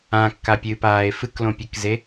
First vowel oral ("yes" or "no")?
no